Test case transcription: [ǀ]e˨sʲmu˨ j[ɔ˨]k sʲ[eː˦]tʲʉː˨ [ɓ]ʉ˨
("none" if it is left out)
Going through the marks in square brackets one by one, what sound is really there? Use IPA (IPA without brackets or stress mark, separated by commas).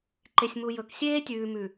ǃ, ɵ˨, eː˦, m